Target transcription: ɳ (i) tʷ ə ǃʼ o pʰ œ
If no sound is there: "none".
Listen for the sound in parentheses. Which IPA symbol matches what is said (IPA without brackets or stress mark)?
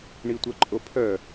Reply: i